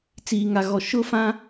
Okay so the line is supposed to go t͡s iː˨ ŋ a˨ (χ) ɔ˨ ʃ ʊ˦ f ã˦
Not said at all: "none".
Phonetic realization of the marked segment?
ɣ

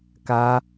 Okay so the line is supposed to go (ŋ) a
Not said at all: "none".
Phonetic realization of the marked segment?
k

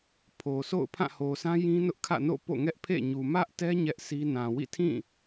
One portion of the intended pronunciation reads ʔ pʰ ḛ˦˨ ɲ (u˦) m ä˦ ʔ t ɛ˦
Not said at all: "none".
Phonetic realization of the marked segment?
u˨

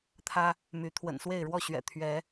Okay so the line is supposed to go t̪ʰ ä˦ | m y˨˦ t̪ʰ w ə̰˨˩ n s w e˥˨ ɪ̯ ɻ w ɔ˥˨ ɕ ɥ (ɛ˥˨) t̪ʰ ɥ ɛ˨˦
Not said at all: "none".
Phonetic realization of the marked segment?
ɛ̰˨˩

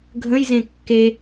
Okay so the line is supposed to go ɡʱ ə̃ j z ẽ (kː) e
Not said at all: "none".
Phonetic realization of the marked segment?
kː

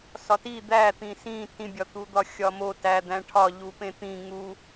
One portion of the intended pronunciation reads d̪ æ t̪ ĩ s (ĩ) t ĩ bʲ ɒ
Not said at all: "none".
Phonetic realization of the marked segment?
ĩ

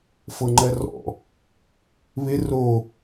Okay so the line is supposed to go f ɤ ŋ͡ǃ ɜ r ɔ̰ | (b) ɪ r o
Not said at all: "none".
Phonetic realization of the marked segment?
β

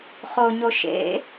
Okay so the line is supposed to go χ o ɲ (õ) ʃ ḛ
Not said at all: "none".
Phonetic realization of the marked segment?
o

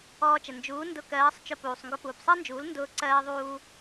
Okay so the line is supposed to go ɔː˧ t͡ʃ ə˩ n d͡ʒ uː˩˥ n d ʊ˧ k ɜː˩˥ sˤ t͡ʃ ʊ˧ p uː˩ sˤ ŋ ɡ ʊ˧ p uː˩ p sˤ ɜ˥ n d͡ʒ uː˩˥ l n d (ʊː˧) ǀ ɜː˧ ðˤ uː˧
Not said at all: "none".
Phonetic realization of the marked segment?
ʊː˧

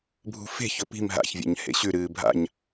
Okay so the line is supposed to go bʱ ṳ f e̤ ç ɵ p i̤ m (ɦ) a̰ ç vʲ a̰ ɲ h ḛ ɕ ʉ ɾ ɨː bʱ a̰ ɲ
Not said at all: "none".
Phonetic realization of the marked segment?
ɦ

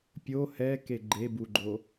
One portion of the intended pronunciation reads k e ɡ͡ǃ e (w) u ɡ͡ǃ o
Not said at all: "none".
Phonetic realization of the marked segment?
b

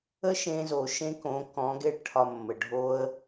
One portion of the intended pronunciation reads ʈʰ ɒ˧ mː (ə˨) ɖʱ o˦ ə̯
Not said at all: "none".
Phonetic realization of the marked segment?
ə˨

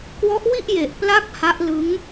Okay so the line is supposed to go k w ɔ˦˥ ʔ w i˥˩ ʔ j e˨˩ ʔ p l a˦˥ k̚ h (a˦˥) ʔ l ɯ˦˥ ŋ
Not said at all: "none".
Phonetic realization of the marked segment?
a˦˥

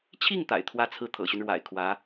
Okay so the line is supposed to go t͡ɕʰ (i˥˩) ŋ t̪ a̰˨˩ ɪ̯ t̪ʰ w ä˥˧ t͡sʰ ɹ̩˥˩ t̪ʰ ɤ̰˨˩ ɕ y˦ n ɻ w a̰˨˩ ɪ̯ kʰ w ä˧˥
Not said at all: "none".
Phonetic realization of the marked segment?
i˥˩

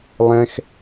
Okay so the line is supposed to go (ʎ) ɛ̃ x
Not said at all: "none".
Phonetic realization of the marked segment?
lˠ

